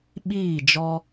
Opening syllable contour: falling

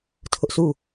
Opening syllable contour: high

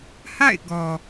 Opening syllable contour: falling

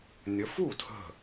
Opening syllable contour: rising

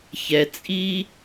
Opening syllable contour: low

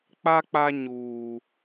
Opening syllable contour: high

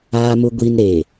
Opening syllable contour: low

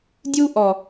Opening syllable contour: high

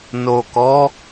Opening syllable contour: low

